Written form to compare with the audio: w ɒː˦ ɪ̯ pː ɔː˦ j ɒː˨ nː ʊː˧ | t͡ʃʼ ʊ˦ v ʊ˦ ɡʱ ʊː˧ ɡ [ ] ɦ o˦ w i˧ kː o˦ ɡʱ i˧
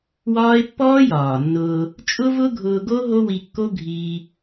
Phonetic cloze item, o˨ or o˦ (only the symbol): o˦